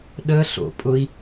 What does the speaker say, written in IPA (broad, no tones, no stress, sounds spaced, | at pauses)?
ɗ ə ɬ o̰ pʼ ʊ i̯